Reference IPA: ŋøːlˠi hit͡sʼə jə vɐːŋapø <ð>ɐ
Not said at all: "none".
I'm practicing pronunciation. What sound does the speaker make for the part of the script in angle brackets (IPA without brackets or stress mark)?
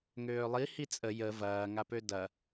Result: d